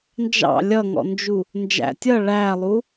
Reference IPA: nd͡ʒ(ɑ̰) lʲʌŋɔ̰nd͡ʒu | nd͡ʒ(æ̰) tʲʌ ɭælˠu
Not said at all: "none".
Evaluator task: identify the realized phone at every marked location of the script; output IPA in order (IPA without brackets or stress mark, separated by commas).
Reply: ɑ̰, æ̰